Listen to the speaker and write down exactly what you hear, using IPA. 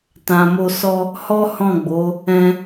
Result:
t ã˧ m o˦ s ɔ˦ | h ɔ˦ h ɔ̃˦˨ ɡ͡b o˨˦ | ɛ̃˦

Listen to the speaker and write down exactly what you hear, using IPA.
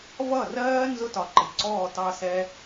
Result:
v ʌ˦˨ r ɜː˦ n z ʊ˦ t ɒ˨ ǃ ɪ˨ ǀ ɔː˦˨ t ɑ˦ s ɛ˦

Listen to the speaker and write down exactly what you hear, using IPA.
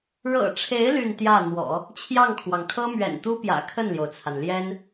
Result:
ɻ ɤ̰˨˩ ʈ͡ʂʰ e˧˥ ɪ̯ l y˥˧ n t̪ j ä˥˩ n̪ w ɔ̰˨˩˦ | t͡ɕʰ j ɑ˥˩ ŋ kʰ w ɑ˩ ŋ kʰ ɤ˥ m ɥ ɛ̰˨˩ n t̪ u˥ p j ä̰˨˩ kʰ ə˥˩ n l j o˩ ʊ̯ t͡sʰ a˩ n l j ɛ˥ n

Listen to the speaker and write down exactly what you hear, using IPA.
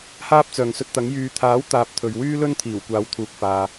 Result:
h aː˥ p̚ t͡s œː˨ ŋ s ɵ˧ t̚ t̪ ɐ˨˥ ŋ j yː˨ t̪ʰ aː˨˥ w t̪ aː˧ p̚ t̪ʰ ɵ˨ ɥ w yː˥ l ɵ˥ n t̪ʰ iː˨˩ w kʷ aː˨˧ w t̪ʰ uː˨ k̚ f aː˨

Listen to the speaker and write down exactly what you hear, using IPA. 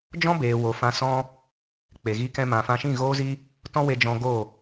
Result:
d͡ʒ ɔ̃˦ b eː˨ w o˨ f ã˧ s ɔ̃˦ | k͡p e˨ ɣ i˧ k ɛ̃˧ m ã˨ f ã˧ ʃ ĩ˦˨ ɣ oː˦ z i˦ | t ɔ̃˦ w e˧ d͡ʒ ɔ̃˧ ɡ o˦˨

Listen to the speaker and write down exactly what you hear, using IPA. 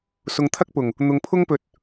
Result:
s ʊ˨ ŋ t̪ʰ ɐ˥ k̚ p ʊ˨˩ ŋ | n̪ ʊ˨ ŋ pʰ ʊ˥ ŋ p ɵ˧ t̚

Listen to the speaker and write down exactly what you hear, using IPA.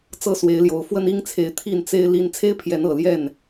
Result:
t͡s ɤ˦ s w e˨˦ ɪ̯ l j o˨˦ ʊ̯ f w ə˦ n i˦ ŋ t͡sʰ e˨˦ ɪ̯ t̪ʰ i˥˨ n t͡s e˦ ɪ̯ l i˦ n t͡sʰ e˦ ɪ̯ pʰ j ɛ˨˦ n ɤ˨˩ l j ɛ˥˨ n

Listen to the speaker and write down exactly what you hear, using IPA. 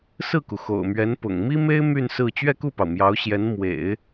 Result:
s ɹ̩˥˩ k u˩ x o̰˨˩ ʊ̯ m ɥ ɛ˧˥ n p ʊ̰˨˩ ŋ m i˥ m e˥ ɪ̯ m y˥˧ n s ɹ̩˥˧ t͡ɕ ɥ ɛ˥˧ k u˥˩ p ɑ˩ ʊ̯ m j ɑ˧˥ ʊ̯ ɕ j ɛ˧˥ n m w ḛ˨˩˦ ɪ̯

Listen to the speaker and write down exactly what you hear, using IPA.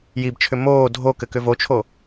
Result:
j i b t͡ʃʰ ʏ m oː dʱ o k ɘ k ʏ v o t͡ʃʰ o

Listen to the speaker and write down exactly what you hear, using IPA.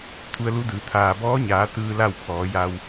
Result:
t̪ʰ u˧ ə̯ l u˧˥ d ɯː˩˧ t̪ʰ aː˩ b ɔː˧˥ ɲ aː˩˧ t̪ ɯː˧ l a˥˨ w pʰ ɔː˩˧ j a˧ w

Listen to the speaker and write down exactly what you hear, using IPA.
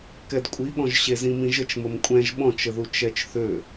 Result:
k ɛ d kʷʼ i ɠ ɔ̃ ʒ ɕ e z ĩ m ĩ ʒ ə t͡ʃ m ə m kʷʼ ɛ̃ ʒ ɓ ɔ̃ t͡ʃ ə ð u t͡ʃ ɛ t͡ʃ θ ø

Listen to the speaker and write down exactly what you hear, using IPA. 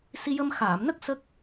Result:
s i˧ j ə˧ m x aː˨˩˨ m n ə˦˥ k̚ s ə˦˥ k̚

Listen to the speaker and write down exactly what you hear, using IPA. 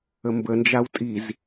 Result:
ə m b ə n d͡ʒ a w tʼ i z

